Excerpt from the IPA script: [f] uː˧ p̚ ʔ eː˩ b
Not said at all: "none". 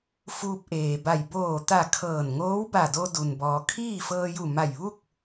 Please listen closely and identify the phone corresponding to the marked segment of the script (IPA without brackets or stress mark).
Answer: f